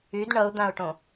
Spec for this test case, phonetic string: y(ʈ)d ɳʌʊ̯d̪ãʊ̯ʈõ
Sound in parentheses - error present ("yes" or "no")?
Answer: yes